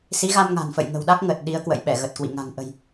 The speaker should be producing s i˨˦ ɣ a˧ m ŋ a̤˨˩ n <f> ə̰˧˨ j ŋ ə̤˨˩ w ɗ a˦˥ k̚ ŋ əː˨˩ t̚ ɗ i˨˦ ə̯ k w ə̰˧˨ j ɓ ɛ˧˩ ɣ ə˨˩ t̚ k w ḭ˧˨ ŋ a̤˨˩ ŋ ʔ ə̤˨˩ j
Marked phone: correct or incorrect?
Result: correct